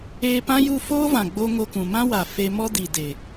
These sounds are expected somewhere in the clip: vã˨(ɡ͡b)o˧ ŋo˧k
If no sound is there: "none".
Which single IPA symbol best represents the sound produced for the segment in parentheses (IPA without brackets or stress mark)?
ɡ͡b